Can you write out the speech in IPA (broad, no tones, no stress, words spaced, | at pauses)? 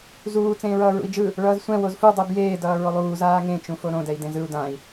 zuː t͡sẽːɹʌːɹṵi̯d͡ʒɯ | ɭʌːzsʷɛ̃ wozfudˤɯ bjeːdʌː ɹolˠuːzaː ŋẽt͡ʃũfo ɾõdɛi̯dẽz ɯu̯ dãi̯